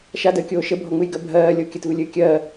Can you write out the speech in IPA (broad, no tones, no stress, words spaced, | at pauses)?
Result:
ʃadəːkʲoː ʃəbʱɔŋ͡mɨjɡɜ bʱɜːlʲo kʲətvɨlʲɨː kʲɜː